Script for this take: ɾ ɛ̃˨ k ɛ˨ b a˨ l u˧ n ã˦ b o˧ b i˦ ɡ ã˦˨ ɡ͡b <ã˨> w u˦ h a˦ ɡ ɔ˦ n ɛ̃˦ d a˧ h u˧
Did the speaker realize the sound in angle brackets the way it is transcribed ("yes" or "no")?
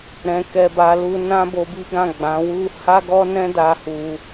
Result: no